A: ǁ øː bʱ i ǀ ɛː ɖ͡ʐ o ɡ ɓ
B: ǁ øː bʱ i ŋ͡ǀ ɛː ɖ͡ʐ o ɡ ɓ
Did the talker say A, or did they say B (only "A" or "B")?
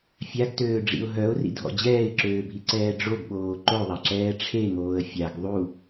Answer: A